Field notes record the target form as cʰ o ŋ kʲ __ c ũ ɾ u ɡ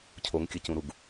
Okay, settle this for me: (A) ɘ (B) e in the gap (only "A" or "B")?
A